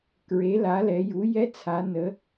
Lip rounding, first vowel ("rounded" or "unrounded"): unrounded